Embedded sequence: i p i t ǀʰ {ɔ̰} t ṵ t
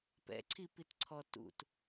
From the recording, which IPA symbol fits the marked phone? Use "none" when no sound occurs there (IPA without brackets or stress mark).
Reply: ɔ